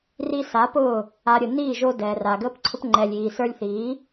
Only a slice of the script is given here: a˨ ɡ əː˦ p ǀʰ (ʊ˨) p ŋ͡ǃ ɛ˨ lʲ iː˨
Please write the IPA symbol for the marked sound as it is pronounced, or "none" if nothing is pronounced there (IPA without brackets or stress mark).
ʊ˦